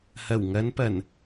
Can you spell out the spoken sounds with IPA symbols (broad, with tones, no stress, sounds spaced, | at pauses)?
h ɐ˨˩ w ŋ ɐ˨˧ n p ɐ˨˩ n